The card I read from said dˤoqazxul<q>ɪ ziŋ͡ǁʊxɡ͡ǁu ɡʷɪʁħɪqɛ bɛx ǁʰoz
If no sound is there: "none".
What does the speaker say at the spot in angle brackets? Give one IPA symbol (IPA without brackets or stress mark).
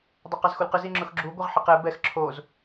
q